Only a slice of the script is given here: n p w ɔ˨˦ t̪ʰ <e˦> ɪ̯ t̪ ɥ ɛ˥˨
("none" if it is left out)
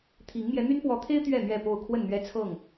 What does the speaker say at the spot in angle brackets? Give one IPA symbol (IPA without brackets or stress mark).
e˦